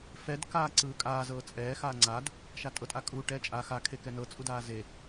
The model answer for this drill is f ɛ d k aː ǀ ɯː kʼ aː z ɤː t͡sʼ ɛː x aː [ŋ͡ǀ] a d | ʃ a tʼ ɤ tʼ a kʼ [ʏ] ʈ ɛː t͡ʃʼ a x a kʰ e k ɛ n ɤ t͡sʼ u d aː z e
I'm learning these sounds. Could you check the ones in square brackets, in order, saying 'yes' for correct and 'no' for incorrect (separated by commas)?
yes, no